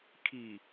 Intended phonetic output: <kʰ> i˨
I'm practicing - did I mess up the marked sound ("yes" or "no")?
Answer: no